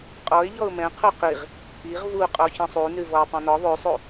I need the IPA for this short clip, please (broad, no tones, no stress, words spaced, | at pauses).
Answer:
qʼɔɪ̯ ʎɔʊ̯mɛ̃ qʰuqiʁ | iʁ vuqʼɔ çɛ̃sˤu nʉvɔʊ̯tˤɛ̃nɔ ðˤʉsˤu